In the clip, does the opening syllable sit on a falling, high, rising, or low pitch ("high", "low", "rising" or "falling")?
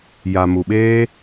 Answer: low